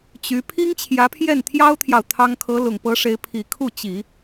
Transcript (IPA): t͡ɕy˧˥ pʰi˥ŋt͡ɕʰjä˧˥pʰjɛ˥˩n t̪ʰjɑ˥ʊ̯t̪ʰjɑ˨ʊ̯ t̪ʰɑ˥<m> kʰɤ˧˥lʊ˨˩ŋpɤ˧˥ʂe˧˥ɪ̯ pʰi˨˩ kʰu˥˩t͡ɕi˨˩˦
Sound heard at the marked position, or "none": ŋ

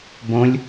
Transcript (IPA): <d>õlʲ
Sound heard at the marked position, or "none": b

